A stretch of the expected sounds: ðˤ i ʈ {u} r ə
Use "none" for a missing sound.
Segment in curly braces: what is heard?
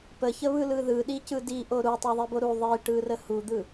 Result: ɯ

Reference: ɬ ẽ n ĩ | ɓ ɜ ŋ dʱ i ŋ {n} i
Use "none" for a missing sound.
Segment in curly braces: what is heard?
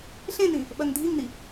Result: n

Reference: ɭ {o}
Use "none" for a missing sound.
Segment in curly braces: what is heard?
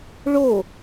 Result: o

